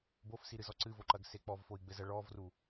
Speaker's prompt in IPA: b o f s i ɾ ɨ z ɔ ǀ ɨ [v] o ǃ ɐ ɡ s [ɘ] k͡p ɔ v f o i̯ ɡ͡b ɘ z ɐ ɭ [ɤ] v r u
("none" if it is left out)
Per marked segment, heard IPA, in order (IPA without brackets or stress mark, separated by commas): v, e, ɔ